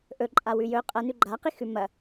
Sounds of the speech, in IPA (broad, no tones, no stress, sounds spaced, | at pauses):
ʔ ɵ ǃʼ a w ʉ j ɵ qʼ ɐ n ʉ ɡ͡ǃ a q i x ʉ m ɐ